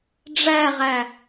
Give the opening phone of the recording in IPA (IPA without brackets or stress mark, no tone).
ɖ͡ʐ